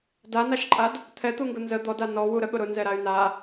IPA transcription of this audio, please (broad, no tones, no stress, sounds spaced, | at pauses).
d a n a ʃ ǃʼ a d | t̪ʰ ɛ t̪ u ŋ ɡ ʊ n z ə d̪ ɔ d a n ɔ w u ɾ ə ɠ ʊ ɾ ʊ n z ɛ ɾ a y̯ n a